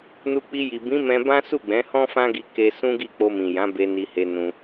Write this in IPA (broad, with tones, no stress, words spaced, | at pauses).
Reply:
nu˧k͡pi˧ji˨ bĩ˨˦mɛ̃˧bã˦ su˦˨ɡ͡bɛ̃˨˦hɔ̃˦ fã˦ɡi˧ke˧ sũ˦ɡi˦˨ k͡po˧mĩ˨jã˨˦ be˧ni˧he˧nũ˧